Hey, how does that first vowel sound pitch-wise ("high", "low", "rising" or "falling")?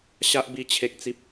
high